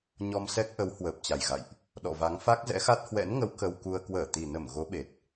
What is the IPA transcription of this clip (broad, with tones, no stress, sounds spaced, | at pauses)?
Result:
ɲ ɔ˧ m s ɛ˦˥ k̚ ʔ ə˨˦ w h w əː˨˩ p̚ t͡ɕ a˨˩ j ɣ a̰˧˨ j ʔ | ɗ ɔ̰˧˨ v a˨˦ ŋ f a˦˥ k̚ z ɛ̰˧˥ x a˦˥ t̚ h w ɛ̰˧˥ n ŋ ə˨˦ w k ə˧ w k u˧ ə̯ k w əː˧˩ t̪ i˨˩ n ə˧˩ m ɣ o˨˦ ɓ e˨˩ t̚